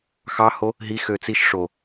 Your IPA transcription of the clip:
x ɑ h o | ɦ i x ø t͡s i ʃ ʂ o

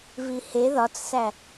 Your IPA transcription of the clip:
v i h e ð ɒ t͡s s æ

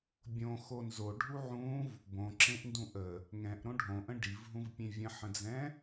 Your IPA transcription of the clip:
bʲ õ x o n z o ɖʱ u ʕ ũ v | b õ ǁ ẽ ʔ n d ũ ʔ ə | ŋ ɛ̃ ʔ ɾ õ ɖʱ õ ʔ ə̃ ɖ i v ɦ ũ v pʲ ẽ vʲ ə̃ ħ ə̃ d͡z ɛ̃

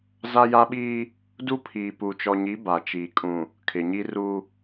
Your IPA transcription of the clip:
z a˦ j a˦ ɓ iː˦ | d u˦ pʰ iː˨ p u˨ t͡ʃ ɔ˨ ɲ i˨˦ b a˨ t͡ʃ iː˨ kʼ ũ˨ | kʰ ɪ˨ ɲ i˦ r u˦

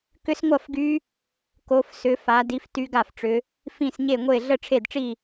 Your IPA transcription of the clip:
k ʏ˦˥ s ŋʷ ɐ˥˧ f ɡ y˦˥ | k o˦˥ f s ʏ˦˥ f a˦˥ d i˦˥ f t y˦˥ ɡ a˥˧ f ʈ͡ʂ ʏ˦˥ | f ĩ˥˧ s ɲ e˥˧ ŋʷ e˥˧ ɮ ə˥˧ ʈ͡ʂʰ e˥˧ d ʈ͡ʂ i˥˧

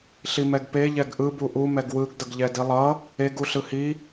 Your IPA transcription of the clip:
ɬ i m ɛ ɡ p e ʎ ɛ ɡ ʔ ɯ b u ʔ u m ɛ ɡ w ɯ ɡ d ʌ ɡ ʎ ɛ d i lˠ ʌ | e ɡ u ɬ ɯ h i

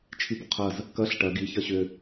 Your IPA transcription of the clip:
t͡ʃʰ i b ʊ qʰ ɐ z | k ɐ ɬ ʈ ɐ ɡ i ç ɐ ɕ ʏ

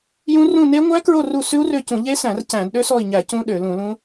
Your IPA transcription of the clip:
j ũ˦˥ r ũ˦˨ n e˦˥ ŋʷ æ˦˥ k ɹ o˦˨ r u˦˨ s ʉ˦˥ u̯ r ø˦˨ c ũ˧˩˧ ʎ e˦˥ s æ̃˧˩˧ r c æ̃˧˩˧ d ɗ ø˦˥ s ɔ˦˨ i̯ ɲ æ˧˩˧ c ũ˦˥ ɗ ø˧˩˧ l ũ˧˩˧ l ũ˦˥

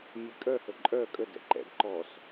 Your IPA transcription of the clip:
mʲ e kʼ œ h ə ǃʼ œ kʼ ə d ɛ̰ ǃ ɛ̰ d ǃ ɔ s

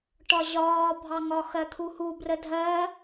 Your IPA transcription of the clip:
ʈ ɒ ʑ ɒː bʱ ɑ ŋ ɒ x ɜ t̪ʰ u h u b r ə dʱ ɜ

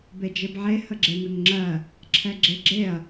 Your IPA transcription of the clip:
b e d͡ʒ e b ʕ e h ə ɡ͡ǁ e n ə ŋ ŋ͡ǁ ɜ | ǁʰ ɛ ɡ͡ǁ e ɡ͡ǁ e ɐ̯

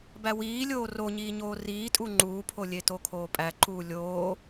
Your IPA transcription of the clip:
b æ w iː lʲ oː r o ɲ iː ɲ oː r iː tʼ u ŋ͡ǃ uː pʰ o lʲ e t o kʰ oː pʼ æ ǃ uː lʲ oː

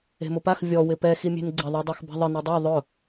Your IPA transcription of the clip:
e̤ m ʊ p a x vʲ ɔ w ɪ p ɛ x i mʲ e̤ n ɡ͡ǀ ɪ ðˤ i dˤ a x b ɛ̤ ðˤ ɪ n e dˤ u ðˤ ʊ

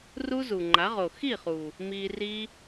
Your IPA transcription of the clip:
r u˦ z u˨ ŋ͡ǃ a˨˦ ʁ o˨ x i˦˨ χ uː˨ | m iː˧ r iː˦

